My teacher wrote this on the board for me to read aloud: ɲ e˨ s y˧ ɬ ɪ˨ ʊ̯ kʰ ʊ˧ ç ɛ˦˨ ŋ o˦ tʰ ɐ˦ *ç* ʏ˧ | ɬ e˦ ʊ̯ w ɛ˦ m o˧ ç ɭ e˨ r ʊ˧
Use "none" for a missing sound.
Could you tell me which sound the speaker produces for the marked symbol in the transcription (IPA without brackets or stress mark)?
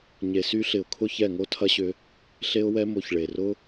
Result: ɕ